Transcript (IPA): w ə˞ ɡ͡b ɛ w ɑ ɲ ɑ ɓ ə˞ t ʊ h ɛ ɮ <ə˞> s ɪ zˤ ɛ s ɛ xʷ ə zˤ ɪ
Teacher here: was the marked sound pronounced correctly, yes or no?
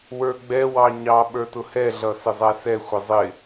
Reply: no